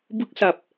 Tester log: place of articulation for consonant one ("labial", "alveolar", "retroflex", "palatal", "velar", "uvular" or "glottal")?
labial